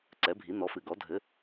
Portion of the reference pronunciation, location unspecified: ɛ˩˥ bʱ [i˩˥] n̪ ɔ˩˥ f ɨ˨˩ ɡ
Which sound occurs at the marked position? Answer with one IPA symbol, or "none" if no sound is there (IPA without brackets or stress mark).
i˩˥